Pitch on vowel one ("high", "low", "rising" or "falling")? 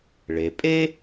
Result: low